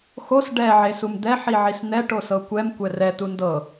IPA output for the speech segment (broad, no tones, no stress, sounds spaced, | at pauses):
x o s ɖ ɛ ʕ e s u m d̪ ɛ ħ i ʕ i s n̪ ɛ ʈ o s ɤ kʷ ɛ m kʷ ɛ r ɛ t u n d ɤ